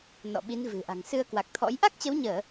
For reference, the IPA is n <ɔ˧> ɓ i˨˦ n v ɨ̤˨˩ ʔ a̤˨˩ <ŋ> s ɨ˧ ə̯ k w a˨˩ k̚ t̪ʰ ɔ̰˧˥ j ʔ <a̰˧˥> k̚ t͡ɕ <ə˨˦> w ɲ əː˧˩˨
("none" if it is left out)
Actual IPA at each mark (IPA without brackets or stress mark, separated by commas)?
ɔ̰˧˨, ŋ, a˦˥, ə˨˦